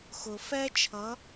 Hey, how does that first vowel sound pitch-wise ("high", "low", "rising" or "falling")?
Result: low